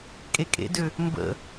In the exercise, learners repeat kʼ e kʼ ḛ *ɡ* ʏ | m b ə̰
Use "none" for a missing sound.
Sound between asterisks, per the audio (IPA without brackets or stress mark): d